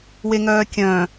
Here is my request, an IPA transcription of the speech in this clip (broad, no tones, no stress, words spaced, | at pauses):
weŋœːkʲœ̃